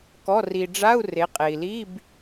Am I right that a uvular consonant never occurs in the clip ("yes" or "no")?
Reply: no